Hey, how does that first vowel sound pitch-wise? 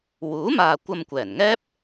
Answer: rising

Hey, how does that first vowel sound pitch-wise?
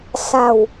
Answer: low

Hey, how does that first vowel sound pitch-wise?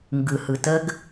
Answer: low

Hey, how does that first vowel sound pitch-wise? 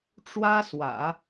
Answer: high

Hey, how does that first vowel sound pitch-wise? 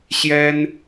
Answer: high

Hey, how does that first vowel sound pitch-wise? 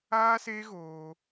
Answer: high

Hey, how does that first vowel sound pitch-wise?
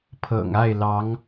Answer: low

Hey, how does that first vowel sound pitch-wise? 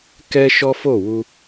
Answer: high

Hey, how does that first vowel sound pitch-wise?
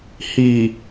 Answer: low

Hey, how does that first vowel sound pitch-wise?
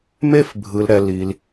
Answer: high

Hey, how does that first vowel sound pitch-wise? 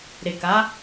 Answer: low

